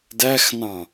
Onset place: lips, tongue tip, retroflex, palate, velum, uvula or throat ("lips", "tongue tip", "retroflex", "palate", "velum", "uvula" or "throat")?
tongue tip